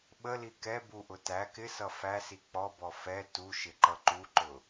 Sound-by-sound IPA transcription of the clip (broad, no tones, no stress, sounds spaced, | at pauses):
ɓ ə l i k ɛ b u ʔ ʊ t æ k ɪ s ʌ f æ s i k͡p ɔ b ɔ f ɛ t u ʃ ɪ ǃ ʌ ǃ u ǃ ʊ